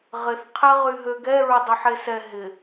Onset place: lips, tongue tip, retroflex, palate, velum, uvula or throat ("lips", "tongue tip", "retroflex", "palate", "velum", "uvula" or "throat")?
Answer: uvula